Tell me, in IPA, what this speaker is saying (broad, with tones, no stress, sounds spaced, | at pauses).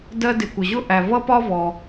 d ɜ˧ d ɪ˩ kʷ ə˩ ʑ ʊ˥ ʔ æ˩ v ʌ˥ p ɒ˥ v ɔ˩